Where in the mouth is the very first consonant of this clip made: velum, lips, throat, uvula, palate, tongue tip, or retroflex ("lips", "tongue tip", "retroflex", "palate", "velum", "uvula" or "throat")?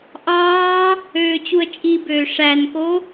throat